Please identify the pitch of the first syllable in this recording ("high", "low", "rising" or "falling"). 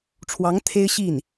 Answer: rising